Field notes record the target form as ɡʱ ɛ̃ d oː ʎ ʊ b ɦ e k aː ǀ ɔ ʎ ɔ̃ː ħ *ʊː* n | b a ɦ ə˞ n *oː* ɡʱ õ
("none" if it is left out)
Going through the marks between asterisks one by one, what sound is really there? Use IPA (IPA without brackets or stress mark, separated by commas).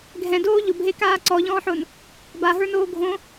ʊː, oː